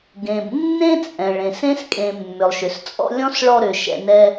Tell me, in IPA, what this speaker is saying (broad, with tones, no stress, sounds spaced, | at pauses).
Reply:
ɡ ẽ˩ b nː ẽ˥ t͡sʼ ɛ̃˩ ɭ ẽ˩ s ẽ˥ s kʼ ẽ˨ mː ʏ˩ lˠ ʃ ʏ˩ s t͡sʼ ɔ̰˦ lʲ ɔ̃˥ s ɭ ɔ˦ ɾ ʏ˩ ʃ ɛ̰˨ n ɛ˦